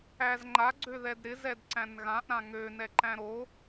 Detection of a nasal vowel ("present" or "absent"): present